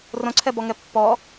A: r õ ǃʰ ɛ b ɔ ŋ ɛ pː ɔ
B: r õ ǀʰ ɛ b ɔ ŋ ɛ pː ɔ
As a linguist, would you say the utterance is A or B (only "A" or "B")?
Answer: B